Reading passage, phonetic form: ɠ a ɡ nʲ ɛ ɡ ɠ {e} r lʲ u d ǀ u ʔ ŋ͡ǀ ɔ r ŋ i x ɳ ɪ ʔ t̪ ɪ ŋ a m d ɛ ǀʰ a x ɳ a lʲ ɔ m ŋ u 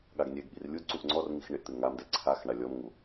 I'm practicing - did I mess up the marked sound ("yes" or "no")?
yes